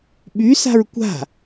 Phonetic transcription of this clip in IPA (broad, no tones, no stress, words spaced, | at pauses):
ɓysa̤ɹ kʷa̤